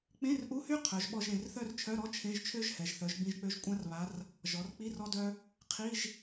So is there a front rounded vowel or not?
yes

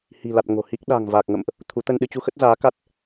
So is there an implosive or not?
yes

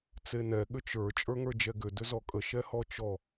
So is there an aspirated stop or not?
no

